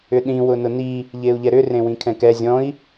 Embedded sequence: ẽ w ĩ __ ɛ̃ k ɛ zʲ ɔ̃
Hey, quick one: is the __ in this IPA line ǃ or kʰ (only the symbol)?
kʰ